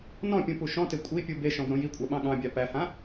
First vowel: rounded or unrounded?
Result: rounded